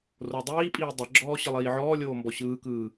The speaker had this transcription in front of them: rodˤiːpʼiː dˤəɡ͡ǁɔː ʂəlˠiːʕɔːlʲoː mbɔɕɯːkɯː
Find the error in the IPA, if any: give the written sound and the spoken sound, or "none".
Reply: ʂ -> ɕ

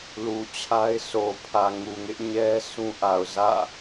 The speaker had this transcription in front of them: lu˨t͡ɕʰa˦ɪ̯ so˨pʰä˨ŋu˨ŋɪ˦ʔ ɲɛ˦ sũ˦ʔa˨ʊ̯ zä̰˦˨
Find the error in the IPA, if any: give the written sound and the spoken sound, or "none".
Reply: none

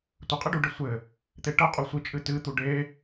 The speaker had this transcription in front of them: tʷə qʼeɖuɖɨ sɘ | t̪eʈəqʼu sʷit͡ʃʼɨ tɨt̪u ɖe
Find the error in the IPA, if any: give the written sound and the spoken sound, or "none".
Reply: s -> sʷ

